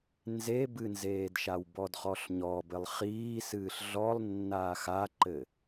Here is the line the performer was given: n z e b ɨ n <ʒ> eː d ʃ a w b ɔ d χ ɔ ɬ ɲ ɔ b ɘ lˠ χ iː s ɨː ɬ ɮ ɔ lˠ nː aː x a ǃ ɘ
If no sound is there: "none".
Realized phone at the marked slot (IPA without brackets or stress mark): z